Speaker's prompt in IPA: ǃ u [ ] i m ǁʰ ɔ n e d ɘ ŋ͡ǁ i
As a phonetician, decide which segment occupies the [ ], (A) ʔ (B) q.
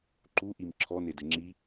A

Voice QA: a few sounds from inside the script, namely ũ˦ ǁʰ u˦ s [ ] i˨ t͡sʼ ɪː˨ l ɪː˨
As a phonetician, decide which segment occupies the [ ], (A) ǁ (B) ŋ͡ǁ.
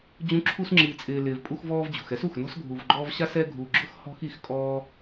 B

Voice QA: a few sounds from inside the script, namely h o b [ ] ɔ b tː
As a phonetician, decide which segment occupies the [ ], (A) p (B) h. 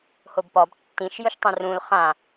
A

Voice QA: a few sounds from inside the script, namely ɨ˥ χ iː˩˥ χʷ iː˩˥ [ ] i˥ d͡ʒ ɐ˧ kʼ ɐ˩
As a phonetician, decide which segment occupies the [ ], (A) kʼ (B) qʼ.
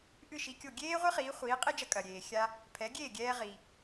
B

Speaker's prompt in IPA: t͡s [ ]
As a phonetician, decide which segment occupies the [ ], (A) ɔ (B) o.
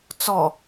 A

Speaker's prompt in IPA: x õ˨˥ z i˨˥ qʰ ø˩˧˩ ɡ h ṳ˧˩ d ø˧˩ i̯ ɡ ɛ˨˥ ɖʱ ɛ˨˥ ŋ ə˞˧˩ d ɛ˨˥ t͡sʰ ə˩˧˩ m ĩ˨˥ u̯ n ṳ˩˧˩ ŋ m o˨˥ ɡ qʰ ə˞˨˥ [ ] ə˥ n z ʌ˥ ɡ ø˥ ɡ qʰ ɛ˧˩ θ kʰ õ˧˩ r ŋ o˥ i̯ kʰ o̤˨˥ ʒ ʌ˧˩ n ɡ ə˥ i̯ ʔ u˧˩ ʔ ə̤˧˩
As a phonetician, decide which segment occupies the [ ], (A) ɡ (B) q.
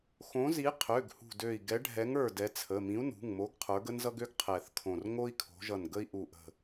A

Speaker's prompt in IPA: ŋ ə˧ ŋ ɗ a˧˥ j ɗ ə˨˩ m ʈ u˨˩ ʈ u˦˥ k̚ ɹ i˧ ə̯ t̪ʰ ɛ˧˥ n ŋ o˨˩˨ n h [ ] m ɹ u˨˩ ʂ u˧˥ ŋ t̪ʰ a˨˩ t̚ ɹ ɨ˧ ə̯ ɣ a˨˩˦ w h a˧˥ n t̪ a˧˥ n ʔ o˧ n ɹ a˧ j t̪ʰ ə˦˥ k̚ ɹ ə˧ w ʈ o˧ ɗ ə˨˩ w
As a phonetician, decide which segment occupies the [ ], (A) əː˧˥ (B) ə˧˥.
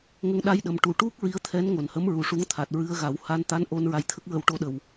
B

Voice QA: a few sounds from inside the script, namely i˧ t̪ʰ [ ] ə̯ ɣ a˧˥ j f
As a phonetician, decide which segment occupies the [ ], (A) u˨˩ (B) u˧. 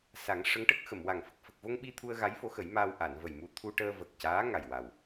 B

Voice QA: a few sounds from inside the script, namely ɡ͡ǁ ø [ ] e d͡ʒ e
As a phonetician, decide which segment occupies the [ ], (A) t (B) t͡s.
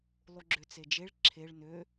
B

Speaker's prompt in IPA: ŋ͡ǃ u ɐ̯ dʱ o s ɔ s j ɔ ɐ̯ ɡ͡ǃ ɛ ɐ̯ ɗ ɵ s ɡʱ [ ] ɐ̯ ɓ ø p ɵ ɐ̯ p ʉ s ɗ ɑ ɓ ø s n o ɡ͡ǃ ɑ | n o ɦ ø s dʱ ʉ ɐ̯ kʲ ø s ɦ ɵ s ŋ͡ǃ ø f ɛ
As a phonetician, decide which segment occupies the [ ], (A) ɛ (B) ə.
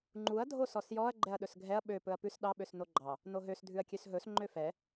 A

